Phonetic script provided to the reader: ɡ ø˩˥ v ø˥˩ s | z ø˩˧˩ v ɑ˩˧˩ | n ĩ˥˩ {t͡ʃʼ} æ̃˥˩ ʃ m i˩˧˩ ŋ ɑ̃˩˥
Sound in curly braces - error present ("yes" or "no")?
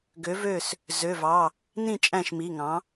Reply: no